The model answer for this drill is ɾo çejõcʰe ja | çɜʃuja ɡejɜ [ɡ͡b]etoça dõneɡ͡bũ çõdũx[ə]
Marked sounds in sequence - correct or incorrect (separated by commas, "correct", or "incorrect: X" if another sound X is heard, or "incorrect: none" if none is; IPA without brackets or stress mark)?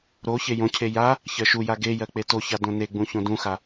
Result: incorrect: k͡p, incorrect: a